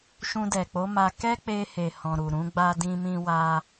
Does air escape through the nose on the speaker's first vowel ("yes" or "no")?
yes